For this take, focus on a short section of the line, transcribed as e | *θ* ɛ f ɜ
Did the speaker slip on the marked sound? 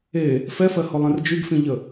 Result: yes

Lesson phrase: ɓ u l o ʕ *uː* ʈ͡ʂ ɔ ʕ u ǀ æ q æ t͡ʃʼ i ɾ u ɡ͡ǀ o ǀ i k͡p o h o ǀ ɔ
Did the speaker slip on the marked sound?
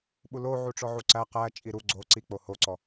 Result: yes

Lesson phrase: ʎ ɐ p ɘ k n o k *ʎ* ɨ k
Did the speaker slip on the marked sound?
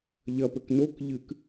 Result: no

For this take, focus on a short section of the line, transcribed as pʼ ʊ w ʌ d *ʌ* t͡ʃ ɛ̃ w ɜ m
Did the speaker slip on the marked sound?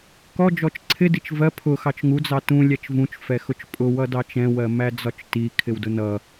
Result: yes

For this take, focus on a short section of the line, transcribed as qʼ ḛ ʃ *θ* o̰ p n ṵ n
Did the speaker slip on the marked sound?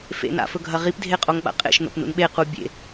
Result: yes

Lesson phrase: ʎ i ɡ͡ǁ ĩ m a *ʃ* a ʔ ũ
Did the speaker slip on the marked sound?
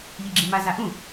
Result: yes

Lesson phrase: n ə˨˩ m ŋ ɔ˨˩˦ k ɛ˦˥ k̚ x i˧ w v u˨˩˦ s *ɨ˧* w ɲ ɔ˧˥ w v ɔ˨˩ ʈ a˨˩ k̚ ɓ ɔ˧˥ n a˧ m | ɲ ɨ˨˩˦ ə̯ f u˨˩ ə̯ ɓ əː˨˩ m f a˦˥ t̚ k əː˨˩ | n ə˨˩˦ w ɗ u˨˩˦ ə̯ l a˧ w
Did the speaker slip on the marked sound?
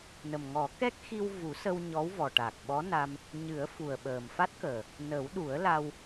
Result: yes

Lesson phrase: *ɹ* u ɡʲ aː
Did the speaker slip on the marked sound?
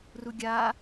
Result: yes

